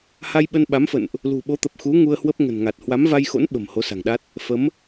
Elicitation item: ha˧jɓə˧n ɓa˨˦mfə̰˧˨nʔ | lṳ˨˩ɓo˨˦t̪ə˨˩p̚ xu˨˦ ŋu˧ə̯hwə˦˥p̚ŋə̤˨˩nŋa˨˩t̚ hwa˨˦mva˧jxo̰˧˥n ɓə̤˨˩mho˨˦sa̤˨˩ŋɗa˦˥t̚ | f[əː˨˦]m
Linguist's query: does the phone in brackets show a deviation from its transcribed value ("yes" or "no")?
yes